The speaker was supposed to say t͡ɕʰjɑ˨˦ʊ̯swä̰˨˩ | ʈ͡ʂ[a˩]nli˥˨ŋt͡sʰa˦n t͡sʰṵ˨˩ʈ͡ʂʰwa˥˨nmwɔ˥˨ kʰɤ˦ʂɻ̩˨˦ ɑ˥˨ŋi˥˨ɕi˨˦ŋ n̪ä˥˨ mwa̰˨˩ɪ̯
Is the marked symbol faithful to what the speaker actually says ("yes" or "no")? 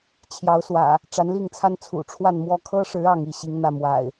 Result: no